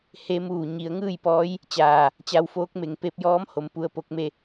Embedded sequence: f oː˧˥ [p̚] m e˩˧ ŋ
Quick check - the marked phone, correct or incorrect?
incorrect